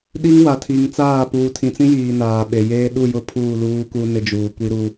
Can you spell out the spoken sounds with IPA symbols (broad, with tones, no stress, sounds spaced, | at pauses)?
ɗ i˦ ŋ w a˨ tʰ i˨ ŋ t͡s aː˦˨ p uː˨ tʰ ĩ˨ t͡s ĩ˦ j iː˨ n aː˨ ɓ e˨ j eː˦ ɗ u˦˨ j ʊ˦ pʰ uː˦˨ l uː˦ k u˦ n ɪ˦ d͡ʒ uː˨ kʷ i˦ ɾ u˦